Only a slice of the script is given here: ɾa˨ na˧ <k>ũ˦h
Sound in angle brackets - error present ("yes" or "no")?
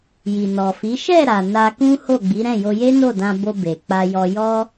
no